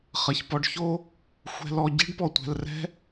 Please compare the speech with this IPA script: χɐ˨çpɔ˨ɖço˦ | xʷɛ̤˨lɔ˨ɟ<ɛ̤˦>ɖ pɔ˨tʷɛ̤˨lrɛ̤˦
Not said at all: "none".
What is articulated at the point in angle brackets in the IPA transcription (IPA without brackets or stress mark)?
ɛ̤˦